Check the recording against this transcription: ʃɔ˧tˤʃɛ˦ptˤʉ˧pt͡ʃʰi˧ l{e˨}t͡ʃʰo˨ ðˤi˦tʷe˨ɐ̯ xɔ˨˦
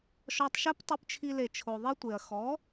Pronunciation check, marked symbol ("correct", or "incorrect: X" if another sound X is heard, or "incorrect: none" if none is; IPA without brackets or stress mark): correct